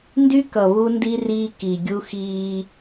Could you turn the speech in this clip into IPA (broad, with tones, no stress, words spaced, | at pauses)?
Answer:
ndy˦kʌ˨ βu˦ndi˦riː˦ ki˨ɡʲu˦xiː˦